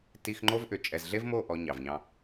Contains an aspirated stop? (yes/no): no